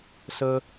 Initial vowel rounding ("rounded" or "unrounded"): unrounded